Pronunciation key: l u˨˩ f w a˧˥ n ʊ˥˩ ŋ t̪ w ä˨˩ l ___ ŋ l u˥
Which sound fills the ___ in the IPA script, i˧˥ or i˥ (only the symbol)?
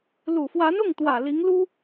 i˧˥